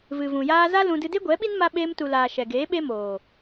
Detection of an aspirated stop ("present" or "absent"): absent